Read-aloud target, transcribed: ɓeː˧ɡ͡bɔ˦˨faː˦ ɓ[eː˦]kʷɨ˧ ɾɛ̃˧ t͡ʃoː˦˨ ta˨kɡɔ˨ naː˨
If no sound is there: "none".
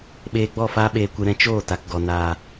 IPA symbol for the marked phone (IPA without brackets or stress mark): eː˧